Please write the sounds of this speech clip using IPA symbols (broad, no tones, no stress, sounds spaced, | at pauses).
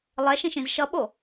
lˠ ɛ ʃ ĩ ʃ ĩ z ʃ ʌ ɓ o